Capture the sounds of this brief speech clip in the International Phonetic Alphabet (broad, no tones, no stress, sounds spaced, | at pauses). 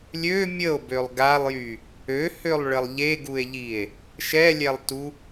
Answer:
lʲ ø mʲ ə o̯ b ø lˠ ɡ a lˠ j y | ø h ø lˠ ɭ ə lˠ ʎ e ɡ u e̯ ʎ i e̯ | ʃ ɛ lʲ ɛ lˠ t u